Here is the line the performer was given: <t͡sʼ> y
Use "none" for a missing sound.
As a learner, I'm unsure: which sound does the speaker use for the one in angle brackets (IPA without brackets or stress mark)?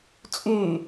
t͡sʼ